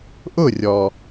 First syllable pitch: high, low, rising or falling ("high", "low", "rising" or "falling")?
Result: falling